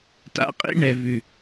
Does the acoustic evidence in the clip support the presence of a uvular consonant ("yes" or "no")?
yes